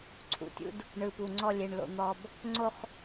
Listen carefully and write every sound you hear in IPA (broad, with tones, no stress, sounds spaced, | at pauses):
ǀʰ ṵ˨ tʲ ṵ˦ d | ɳ ɯ˨ p u˨ ŋ͡ǀ ɔ˦˨ lʲ e˨ ɳ l o̰˨ n̪ ɔ˨ b | ŋ͡ǀ o˦ χ